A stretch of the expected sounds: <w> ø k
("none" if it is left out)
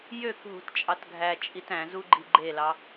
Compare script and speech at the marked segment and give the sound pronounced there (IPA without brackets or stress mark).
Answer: j